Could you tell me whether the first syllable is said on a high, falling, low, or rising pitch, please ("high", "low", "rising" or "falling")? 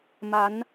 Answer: rising